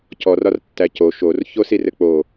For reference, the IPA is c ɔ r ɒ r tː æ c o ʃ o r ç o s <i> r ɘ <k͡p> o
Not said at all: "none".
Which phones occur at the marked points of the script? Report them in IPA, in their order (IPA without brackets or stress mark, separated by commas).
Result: i, k͡p